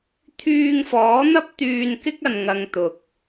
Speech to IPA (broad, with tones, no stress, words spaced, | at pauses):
t̪ʰyː˧ŋfɔː˨˥n̪ɐ˥p̚ t̪yː˧nkɪ˥k̚ɐ˨nŋɐ˨ŋ t̪ʊ˨k̚